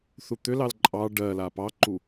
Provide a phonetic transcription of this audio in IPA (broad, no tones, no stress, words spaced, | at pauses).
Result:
θut̪ʏlɑl ǃʼɑ ɖɜla pɑǃu